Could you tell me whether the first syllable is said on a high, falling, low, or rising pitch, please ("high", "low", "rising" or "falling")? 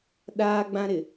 high